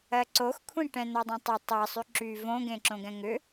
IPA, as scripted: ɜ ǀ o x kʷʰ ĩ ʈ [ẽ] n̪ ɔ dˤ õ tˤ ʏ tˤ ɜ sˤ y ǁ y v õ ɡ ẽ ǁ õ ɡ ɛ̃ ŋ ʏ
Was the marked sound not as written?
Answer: yes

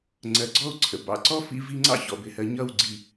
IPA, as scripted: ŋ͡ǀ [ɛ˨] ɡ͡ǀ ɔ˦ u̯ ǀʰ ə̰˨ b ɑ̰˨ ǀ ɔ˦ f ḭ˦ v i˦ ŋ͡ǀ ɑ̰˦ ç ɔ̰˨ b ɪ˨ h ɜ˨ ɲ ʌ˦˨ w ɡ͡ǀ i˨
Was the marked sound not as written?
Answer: yes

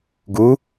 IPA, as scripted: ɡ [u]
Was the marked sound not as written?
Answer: no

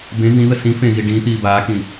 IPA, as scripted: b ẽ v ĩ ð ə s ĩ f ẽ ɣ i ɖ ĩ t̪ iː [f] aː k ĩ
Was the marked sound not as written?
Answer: yes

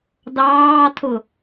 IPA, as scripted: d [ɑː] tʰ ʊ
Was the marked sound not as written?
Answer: no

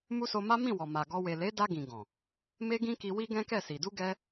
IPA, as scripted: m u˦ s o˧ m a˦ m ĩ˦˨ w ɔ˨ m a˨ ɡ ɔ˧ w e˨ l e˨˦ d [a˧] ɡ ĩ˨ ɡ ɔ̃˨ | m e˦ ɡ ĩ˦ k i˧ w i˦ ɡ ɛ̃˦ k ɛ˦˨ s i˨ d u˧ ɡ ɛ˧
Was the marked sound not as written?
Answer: no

